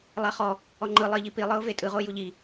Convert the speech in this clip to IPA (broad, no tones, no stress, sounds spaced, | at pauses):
lˠ a χ ɔ | ɔ ŋ͡ǃ ɯ lˠ i ʎ i p i lˠ ɯ ʊ̯ v e tʼ ɯ ʁ o j u ʎ i